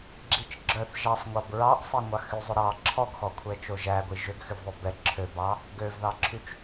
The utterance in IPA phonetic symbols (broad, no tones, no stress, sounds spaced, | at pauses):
ɡ͡ǁ i t͡ʃ ɡ͡ǁ œ θ ʒ ɑ sˤ ŋʷ ɑ b ɹ ɑ ʔ sˤ e ŋʷ ɑ x y zˤ ʉ ɾ ɑ ǁʰ ɔ ɡ x ɔ kʷʰ ɛ t͡ʃ o ʒ æ ɡʷ i ʒ ø ɡ x y v ðˤ o b ɛ ǁʰ ø b ɑ | ɡ ø v ð ɑ ǁʰ y t͡ʃ